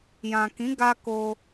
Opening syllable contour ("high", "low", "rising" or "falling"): low